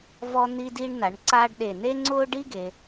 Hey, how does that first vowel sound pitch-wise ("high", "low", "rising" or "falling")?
high